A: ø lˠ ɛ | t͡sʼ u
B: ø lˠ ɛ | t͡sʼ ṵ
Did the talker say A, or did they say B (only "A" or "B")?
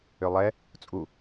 A